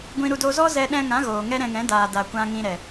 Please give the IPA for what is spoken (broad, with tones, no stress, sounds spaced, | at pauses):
ɡʷ ĩ˧ ɾ u˧ d o˧ z ɔ˦ z ɛ˧ ɗ ɛ̃˧ ŋ ã˨˦ ɣ oː˨ ŋ ɛ˦ ɾ ɛ̃˧ ŋ ɛ̃˨˦ d aː˨ d a˨ kʷ ã˧ ŋ ĩ˧ ɾ ɛ˨